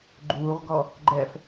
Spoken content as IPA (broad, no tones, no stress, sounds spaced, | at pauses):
ɡ͡ǃ uː ʁ ɡ ɔ | ɡ͡ǃ ɛ f